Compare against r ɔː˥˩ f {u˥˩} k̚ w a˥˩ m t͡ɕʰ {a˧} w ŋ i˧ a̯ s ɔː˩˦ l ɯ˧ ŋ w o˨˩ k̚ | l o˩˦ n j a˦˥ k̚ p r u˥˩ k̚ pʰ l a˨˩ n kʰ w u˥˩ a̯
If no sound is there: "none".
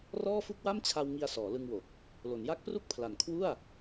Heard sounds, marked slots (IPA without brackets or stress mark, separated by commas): u˥˩, a˧